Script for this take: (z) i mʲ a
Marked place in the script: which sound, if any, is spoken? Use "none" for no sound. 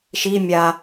ʃ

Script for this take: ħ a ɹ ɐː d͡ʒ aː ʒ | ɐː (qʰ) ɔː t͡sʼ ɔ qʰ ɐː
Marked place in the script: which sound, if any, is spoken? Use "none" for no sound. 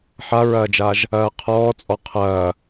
qʰ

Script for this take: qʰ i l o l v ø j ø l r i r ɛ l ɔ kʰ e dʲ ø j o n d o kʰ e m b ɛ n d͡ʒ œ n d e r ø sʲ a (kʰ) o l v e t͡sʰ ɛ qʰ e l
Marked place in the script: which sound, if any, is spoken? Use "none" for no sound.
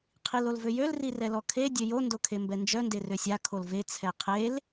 kʰ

